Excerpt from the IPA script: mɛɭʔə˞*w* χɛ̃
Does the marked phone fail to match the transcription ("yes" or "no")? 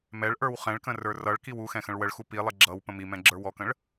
no